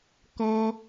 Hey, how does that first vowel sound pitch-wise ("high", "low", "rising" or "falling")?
high